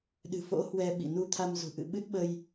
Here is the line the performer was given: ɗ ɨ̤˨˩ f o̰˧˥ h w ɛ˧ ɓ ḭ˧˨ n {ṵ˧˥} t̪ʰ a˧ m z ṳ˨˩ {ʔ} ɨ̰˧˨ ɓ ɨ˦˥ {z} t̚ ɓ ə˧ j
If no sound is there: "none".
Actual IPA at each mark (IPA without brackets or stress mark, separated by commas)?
u˧, ʔ, none